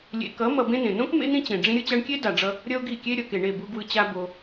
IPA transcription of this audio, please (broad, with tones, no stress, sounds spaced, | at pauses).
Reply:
lʲ ḛ˧ k ʌ˨˦ m ʌ˧ b ẽ˦ n ẽ˨ n õ˦ k m ḛ˦ n ĩ˦ t͡ɕ ẽ˨ ɖ͡ʐ ĩ˧ ɾʲ ɯ˧ t͡ɕ a˧ ɳ kʲ e˦ d a˨ ɖ͡ʐ ʌ˧ | ɾʲ ʌ˦ o̯ ɡ i˦˨ kʲ e˦ ɾʲ ʌ˨ k e˨ ɳ e˦˨ b u˧ ɡ w ɯ˧ t͡ɕ a˦ b o˧